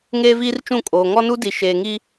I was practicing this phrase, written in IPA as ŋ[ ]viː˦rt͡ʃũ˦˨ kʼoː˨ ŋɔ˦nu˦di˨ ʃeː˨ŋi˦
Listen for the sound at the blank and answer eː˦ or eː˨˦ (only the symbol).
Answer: eː˦